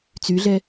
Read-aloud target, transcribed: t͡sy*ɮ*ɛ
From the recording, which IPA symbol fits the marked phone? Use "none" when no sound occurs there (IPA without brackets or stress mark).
ɮ